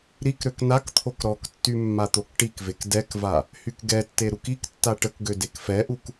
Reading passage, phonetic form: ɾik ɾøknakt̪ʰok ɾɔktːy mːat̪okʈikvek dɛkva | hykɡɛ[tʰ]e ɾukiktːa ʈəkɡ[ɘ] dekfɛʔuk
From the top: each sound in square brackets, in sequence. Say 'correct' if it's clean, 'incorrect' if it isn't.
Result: incorrect, incorrect

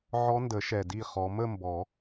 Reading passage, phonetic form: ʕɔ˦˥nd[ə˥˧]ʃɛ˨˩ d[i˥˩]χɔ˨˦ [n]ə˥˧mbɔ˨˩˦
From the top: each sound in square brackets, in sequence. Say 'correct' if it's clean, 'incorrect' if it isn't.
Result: incorrect, correct, incorrect

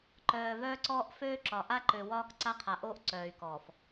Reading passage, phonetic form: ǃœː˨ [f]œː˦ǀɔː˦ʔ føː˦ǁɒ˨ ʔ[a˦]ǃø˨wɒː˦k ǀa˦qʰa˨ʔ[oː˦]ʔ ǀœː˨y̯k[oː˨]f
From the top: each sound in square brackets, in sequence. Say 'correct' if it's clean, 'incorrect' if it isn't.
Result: incorrect, correct, correct, incorrect

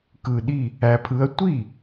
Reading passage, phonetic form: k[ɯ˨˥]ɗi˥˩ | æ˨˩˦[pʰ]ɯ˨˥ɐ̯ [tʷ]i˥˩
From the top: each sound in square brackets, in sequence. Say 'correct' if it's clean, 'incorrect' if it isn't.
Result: incorrect, correct, correct

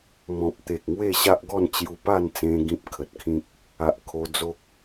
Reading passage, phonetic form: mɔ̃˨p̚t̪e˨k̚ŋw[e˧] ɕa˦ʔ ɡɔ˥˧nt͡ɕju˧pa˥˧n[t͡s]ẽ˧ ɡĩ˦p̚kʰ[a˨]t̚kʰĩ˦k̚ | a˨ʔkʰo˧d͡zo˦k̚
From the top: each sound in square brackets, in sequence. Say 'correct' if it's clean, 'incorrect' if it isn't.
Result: incorrect, correct, incorrect

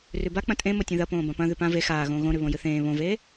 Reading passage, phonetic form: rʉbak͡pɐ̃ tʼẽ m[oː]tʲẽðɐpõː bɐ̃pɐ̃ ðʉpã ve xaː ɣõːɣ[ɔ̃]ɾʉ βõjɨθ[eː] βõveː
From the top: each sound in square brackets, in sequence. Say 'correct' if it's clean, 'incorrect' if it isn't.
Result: incorrect, incorrect, incorrect

